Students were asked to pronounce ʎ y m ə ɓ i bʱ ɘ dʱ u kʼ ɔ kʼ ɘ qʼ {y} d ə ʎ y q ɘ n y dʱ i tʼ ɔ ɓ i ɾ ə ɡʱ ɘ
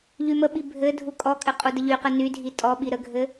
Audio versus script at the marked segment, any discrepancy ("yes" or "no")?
yes